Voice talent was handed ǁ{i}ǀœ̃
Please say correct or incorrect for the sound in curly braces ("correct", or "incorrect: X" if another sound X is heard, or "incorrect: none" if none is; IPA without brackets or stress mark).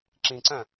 incorrect: ĩ